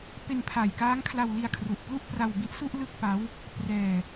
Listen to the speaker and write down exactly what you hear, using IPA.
p e˧ n pʰ a˨˩ j k aː˦˥ ŋ kʰ l a˧ w l i˧ a̯ kʰ r u˨˩ ʔ p l u˥˩ ʔ p r a˧ w b i˦˥ ʔ s u˥˩ ʔ l ɯ˥˩ k̚ p a˦˥ w | p r ɛː˧

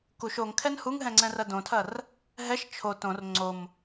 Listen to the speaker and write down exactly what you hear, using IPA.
k u ʃ o ŋ kʰ ɛ n h u ŋ ɦ ɛ̃ ŋ͡ǀ ɛ̃ r ɐ d õ tʰ ɐ r | ɦ ɛ ʃ t͡ʃʰ o t õ r ŋ͡ǀ o m

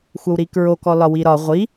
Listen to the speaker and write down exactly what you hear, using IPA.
xʷ ɐ w ɾ i k ɹ o k ɔ l ɒ w i ɾ ɒ ʁʷ i

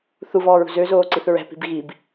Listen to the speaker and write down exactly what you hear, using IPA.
θ u v ɔː ɹ ṳ z ø z oː ǀ i θ ɹ ɛ̤ p i̤ b ɣ i b

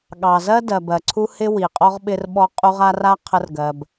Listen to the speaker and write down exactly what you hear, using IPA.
ɠ ɑ˩ z ɜ˥ d ɜ˩ b ɜ˩ ǀʰ u˥ h ɪ˦ w i˩ qʼ ɔ˥ ʁ ɓ ɪ˥ r ɓ ɔ˥ qʼ u˦ ʁ a˥ r a˥ qʰ ə˦ r ɡ ɜ˨ b

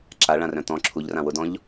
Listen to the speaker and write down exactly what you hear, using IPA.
ǁ a ɭ ã r œ̃ t̪ ɔ̃ ǁʰ u ʎ r ã w ʊ d ɔ̃ ʎ

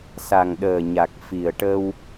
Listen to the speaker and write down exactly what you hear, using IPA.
s a˨˩ ŋ ɗ əː˨˩ ɲ a˨˩ k̚ f i˨˩ ə̯ ʈ ə˧ w

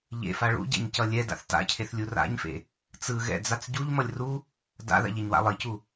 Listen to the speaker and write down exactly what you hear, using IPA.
ʎ ḛ f a ɭ ṵ ɟ ɛ̰ ɲ c ʌ lʲ ɛ d a̰ θ t a̰ cʰ e θ lʲ u r a̰ ɲ f ḛ | t͡s ɯ ɣ ɛ̰ d͡z a t͡s ɟ u ʎ m ʌ lʲ r u | d a̰ ð a̰ ʎ e ɲ w a̰ lˠ i c u

